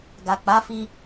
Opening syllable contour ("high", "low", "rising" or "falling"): low